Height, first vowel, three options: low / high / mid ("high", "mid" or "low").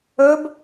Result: mid